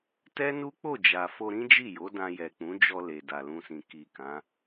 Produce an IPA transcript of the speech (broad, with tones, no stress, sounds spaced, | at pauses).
t ɛ˦ n u˦ k͡p o˦˨ d͡ʒ a˨ f o˧ ɾ ĩ˦ d͡ʒ i˦˨ j o˨˦ d ã˧ j ɛ˨ k͡p ũ˨˦ d͡ʒ ɔ˧ l e˨ d a˨ l ũ˧ s ĩ˨ k i˨ k ã˨˦